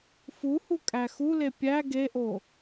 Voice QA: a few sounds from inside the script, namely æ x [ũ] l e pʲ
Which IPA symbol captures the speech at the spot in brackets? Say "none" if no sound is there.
u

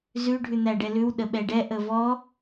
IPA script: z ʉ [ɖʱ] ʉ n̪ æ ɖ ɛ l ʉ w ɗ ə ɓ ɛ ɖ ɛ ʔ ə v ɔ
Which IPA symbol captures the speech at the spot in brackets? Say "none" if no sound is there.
ɖʱ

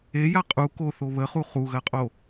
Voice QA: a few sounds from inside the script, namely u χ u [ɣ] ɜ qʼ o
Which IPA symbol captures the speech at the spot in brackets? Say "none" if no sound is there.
ɣ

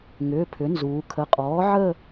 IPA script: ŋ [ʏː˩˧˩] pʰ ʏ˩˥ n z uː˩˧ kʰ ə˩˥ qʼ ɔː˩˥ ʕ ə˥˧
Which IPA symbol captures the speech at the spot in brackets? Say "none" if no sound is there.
ʏː˩˧˩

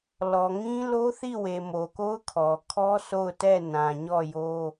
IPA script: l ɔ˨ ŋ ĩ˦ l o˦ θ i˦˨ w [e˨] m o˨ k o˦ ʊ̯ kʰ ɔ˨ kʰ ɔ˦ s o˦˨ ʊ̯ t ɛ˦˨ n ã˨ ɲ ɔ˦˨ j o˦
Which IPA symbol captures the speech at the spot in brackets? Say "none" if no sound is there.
e˨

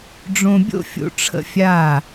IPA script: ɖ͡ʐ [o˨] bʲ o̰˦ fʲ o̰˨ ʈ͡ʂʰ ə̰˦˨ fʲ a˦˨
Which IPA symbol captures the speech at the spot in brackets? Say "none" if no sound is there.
õ˨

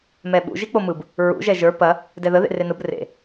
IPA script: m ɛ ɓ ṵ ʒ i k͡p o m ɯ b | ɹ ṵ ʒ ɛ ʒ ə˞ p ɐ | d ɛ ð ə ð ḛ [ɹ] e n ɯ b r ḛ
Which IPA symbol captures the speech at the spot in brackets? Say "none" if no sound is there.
r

